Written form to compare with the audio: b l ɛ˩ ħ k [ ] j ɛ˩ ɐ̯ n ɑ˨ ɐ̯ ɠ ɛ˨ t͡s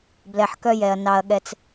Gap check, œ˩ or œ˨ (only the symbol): œ˨